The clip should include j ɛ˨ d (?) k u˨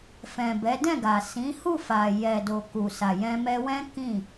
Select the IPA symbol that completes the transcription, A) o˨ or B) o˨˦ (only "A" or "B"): A